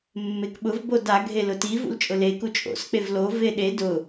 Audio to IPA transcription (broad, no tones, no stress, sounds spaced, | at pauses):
mː e k ɓ ʊ v b o d a ɡʱ e l ʊ t i v ṵ l t͡ʃʼ ʊ l e k u t͡ʃʼ o̰ s k͡p e v l o v e ɗ e d ʊ